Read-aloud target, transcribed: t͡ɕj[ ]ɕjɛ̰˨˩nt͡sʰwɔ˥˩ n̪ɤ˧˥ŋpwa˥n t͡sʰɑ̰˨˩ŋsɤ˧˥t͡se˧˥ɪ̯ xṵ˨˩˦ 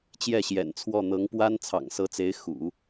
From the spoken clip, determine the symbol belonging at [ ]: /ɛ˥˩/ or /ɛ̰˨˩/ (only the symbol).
ɛ˥˩